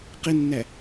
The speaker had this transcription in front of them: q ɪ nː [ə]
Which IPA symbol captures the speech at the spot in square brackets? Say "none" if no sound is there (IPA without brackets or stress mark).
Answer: æ